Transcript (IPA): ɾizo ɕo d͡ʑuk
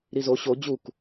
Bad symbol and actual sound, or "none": none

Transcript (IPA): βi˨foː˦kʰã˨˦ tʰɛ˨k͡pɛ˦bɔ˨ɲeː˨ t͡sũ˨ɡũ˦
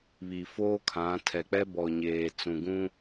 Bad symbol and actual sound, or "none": none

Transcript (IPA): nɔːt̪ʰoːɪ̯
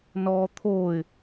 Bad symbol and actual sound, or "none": none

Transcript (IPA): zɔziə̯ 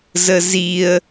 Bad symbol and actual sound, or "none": ɔ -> ə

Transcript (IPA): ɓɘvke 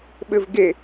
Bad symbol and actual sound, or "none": k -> ɡ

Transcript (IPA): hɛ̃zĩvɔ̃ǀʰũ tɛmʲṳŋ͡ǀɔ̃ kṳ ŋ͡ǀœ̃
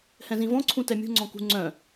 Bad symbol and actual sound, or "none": none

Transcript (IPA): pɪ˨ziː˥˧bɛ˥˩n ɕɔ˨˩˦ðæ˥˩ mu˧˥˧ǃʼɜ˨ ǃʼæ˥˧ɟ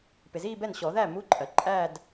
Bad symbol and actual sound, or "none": ɟ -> d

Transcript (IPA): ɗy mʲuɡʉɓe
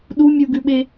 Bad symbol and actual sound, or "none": y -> u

